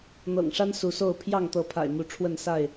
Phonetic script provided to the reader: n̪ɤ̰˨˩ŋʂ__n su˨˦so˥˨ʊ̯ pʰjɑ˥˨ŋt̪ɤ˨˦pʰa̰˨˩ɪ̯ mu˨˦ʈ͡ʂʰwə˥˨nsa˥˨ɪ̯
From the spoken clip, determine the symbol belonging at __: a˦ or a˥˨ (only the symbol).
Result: a˦